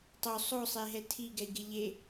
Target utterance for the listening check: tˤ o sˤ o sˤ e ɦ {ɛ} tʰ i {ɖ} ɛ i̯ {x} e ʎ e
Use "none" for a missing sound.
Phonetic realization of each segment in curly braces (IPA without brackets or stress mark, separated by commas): ɛ, ɡ, ɡ